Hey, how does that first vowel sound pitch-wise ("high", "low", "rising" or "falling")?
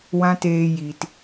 high